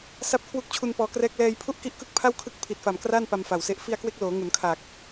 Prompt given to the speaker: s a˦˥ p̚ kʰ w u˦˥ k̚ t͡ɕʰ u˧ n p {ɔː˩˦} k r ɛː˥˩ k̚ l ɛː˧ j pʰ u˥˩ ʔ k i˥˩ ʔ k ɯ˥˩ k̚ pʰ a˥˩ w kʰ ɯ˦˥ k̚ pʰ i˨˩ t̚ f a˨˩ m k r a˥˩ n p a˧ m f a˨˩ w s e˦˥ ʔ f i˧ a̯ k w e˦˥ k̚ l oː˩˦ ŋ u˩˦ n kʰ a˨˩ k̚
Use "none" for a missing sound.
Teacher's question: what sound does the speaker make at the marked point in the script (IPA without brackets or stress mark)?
ɔː˧